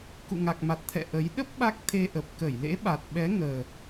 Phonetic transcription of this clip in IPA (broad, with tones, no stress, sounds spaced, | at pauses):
k ṵ˧˨ ŋ a˨˩ k̚ m a˨˩ t̚ t̪ʰ ɛ̰˧˨ ʔ ə˨˦ j ɗ ə˦˥ p̚ ɓ a˦˥ k̚ t̪ʰ e˧ ʔ ə˨˩ p̚ k ə˧˩ j l ḛ˧˥ ɓ a˨˩ t̚ ɓ ɛ˨˦ ŋ əː˨˩